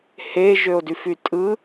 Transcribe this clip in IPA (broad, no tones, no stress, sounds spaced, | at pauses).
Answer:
h e ʒ ø o̯ d y f y tʼ ɯ